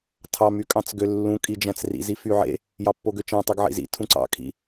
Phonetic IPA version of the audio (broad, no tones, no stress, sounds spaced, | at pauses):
tʰ ɑ m y kʼ ɑ̃ t͡s ɡ ø lː ũ kʼ i d͡ʒ æ̃ t͡s r ḭ z i f y ʕ ḛ | j ɑ pː o ɡ ø t͡ʃ æ̃ tˤ ɯ ɡ ʕ ḭ z ḭ tʰ ũ ǀ ɑ̰ kʰ ḭ